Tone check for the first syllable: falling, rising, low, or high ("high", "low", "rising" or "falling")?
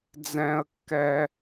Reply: high